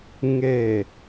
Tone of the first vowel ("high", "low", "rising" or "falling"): low